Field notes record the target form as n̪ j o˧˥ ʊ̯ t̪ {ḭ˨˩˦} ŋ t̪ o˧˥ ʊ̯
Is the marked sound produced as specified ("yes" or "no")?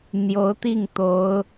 no